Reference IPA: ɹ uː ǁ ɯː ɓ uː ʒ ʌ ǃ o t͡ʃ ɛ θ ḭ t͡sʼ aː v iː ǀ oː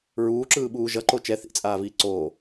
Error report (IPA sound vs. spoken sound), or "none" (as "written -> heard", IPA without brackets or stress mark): none